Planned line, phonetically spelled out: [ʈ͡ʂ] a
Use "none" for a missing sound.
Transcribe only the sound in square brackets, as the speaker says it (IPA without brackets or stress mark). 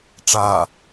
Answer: ʈ͡ʂ